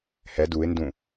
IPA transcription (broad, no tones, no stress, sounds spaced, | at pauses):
h ɛ d u ɪ̯ n d ũ